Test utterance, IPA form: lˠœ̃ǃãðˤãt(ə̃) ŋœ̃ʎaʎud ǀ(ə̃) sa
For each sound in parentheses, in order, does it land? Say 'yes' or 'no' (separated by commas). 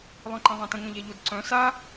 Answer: yes, no